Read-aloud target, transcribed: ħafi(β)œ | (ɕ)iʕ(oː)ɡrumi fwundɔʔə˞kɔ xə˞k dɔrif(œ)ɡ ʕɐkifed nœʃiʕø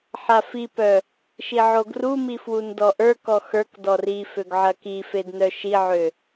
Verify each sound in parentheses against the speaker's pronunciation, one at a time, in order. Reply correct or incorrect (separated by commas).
incorrect, incorrect, incorrect, incorrect